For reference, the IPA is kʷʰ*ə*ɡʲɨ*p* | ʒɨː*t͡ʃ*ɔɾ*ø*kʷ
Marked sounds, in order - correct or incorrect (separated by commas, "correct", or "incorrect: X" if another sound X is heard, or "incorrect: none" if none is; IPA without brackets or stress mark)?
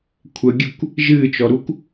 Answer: correct, incorrect: kʷ, correct, incorrect: u